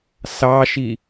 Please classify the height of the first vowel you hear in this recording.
low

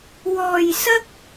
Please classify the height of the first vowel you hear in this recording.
mid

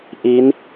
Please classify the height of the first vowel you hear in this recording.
high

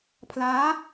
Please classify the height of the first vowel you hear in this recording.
low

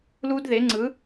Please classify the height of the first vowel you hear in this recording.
high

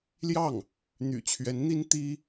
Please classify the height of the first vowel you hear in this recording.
low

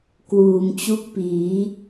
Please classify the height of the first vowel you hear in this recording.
high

